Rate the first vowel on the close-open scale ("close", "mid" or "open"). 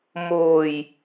mid